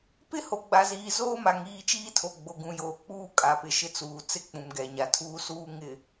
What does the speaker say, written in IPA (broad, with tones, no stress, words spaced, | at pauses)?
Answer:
pɪ˦ho˨ ɡ͡ba˨ziː˨ zoː˦ma˨ŋ iː˦˨t͡ʃiː˦tʰo˨ ɡ͡bo˨ɡũ˨joː˨ k͡puː˦kʼa˨pɪ˨ ʃɪ˦t͡suː˨t͡sɪ˦ k͡pũ˨mɡɛ˨ ɲa˨tʰuː˦suː˦ ŋɪ˨